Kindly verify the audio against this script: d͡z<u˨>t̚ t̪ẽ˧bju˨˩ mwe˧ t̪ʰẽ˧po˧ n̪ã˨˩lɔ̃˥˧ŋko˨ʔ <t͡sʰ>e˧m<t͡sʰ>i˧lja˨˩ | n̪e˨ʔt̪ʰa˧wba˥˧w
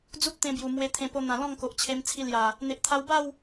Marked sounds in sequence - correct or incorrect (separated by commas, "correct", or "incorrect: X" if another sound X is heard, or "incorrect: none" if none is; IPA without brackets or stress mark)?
incorrect: u˦, incorrect: t͡ɕʰ, correct